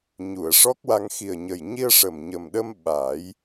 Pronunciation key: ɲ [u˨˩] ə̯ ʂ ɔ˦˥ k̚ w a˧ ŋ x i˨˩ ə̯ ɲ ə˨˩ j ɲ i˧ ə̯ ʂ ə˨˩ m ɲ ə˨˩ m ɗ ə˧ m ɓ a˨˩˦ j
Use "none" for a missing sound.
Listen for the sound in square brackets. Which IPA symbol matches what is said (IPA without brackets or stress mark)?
u˨˩˨